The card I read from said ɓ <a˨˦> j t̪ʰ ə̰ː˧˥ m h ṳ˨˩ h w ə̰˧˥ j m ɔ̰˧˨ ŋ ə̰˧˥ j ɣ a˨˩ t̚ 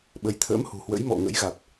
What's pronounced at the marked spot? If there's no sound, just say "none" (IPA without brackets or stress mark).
ə˨˦